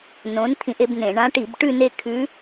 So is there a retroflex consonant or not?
yes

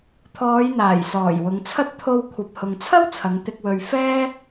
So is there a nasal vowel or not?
no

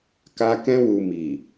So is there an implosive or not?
no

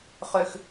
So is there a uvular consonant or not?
yes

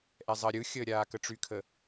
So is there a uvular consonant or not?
no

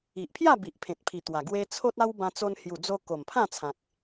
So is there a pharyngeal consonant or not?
no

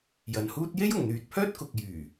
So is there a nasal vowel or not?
no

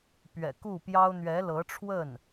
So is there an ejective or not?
no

